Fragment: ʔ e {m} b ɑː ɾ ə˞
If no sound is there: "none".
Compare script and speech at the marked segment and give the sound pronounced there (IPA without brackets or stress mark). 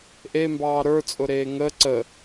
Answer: m